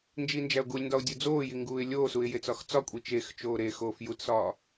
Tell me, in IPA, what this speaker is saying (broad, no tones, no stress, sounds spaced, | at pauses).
n d͡ʒ i n d͡ʒ æ ʊ̯ ɡ u lʲ n d ɒ ʊ̯ dʲ u d͡z oː j i ŋ ɡ uː ɪ̯ lʲ oː s u ɪ̯ j e t͡s ɒ x t͡s ɒ kʷʼ i t͡ʃ e x t͡ʃ oː ɾ e x oː f j u t s ɒː